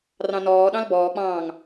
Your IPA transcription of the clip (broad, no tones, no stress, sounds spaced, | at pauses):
r ɑ̃ n ɔː ɗ ɑ̃ l b ɔː k͡p ɑ̃ː ŋ